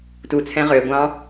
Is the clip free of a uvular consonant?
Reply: no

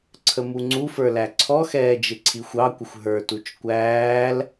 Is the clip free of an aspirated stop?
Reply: no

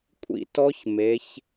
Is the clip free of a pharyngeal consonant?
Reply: yes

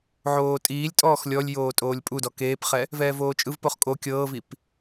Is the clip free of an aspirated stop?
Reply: yes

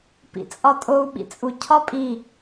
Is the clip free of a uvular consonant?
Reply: yes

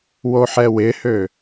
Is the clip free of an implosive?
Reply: yes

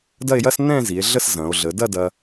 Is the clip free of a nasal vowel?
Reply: no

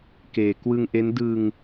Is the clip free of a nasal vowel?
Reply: yes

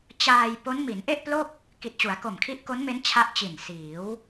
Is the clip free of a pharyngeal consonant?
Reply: yes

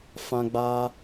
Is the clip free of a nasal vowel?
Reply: no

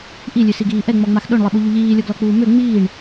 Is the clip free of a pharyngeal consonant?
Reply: yes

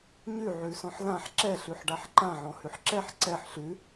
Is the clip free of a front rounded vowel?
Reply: yes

